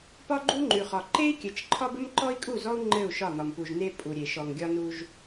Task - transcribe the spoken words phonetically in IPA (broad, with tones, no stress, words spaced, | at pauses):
pɒ˦ɡ͡ǃu˦ŋ͡ǃʉ˨χɒ˨ ǃe˦i̯kʲɘ˨t͡ʃǃʰɒ˦b ɘ˦mǃɔ˦i̯kʼu˦˨zɔ˦u̯ ŋ͡ǃɘ˦˨u̯ʃɒ˦˨n̪ɒ˨mpu˨ʒ ne˦ pʼu˨ɾʲe˨ ʃɔ˨ŋɡʲɒ˦nu˦ʒ